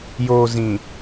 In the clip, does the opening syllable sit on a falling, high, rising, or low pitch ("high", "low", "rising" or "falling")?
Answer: low